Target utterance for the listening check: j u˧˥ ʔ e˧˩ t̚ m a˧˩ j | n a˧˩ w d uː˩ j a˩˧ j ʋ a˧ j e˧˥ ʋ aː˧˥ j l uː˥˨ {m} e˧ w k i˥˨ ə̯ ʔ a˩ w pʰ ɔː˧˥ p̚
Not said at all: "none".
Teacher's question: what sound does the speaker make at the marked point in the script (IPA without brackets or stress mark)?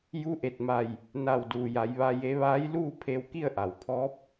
pʰ